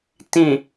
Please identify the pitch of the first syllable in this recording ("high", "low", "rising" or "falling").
low